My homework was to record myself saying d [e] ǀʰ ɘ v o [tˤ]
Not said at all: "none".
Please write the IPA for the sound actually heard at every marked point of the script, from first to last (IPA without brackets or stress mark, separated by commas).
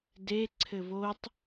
e, tˤ